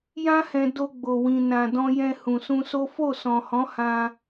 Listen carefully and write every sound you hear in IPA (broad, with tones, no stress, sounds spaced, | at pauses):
j ã˦ h ɛ̃˧ d o˧ ɡ͡b o˨ w ĩ˨ n ã˨ d ɔ̃˧ j ɛ̃˧ h ũ˨ s ũ˧ s o˦ f o˦˨ s ɔ̃˨ h ɔ̃˨˦ h ã˧